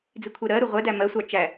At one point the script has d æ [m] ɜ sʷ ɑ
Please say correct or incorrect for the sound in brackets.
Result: correct